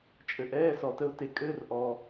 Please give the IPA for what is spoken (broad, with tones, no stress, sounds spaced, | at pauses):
t͡ʃʼ ɘ˨ ʔ ɛː˧˥˧ s ɔ˨ t ə˥ ʊ̯ t e˨ kʼ ɘː˧˥˧ r ʔ ɔː˨